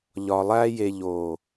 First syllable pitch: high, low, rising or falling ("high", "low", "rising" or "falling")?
low